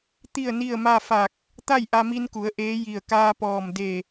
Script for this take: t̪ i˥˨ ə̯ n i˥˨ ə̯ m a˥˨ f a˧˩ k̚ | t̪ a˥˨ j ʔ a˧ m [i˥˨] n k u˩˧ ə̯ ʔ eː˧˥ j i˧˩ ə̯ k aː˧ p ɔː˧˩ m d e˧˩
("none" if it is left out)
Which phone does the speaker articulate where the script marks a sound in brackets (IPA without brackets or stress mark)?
i˧